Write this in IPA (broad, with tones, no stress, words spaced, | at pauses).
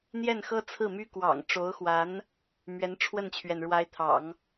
n̪jɛ˥˩nxɤ˥ t͡sʰɹ̩˥˩my˥ kwɑ̰˨˩ŋʈ͡ʂo˧˥ʊ̯xwa˧˥n | mɥɛ˧˥nʈ͡ʂʰwə˥˩nt͡ɕʰɥɛ˩n ɻwa˧˥ɪ̯t̪ʰɑ̰˨˩˦ŋ